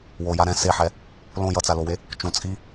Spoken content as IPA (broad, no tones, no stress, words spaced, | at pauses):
woja ɾɛ̃ seħɛ | lõ jʌt͡salowe | t͡ʃũ t͡sʼi